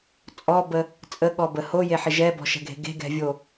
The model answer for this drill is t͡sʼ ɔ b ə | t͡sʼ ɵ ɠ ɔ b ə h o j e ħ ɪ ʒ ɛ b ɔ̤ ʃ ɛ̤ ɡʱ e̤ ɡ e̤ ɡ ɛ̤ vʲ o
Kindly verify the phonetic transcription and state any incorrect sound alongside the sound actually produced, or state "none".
ɵ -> ə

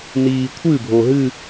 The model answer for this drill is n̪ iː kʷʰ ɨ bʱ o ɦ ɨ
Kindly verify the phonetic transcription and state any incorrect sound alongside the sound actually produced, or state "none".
none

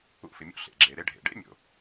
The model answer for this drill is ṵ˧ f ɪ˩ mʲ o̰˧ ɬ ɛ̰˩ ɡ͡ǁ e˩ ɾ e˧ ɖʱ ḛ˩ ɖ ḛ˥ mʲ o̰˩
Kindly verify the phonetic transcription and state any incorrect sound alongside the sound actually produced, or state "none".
ɛ̰˩ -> ḛ˩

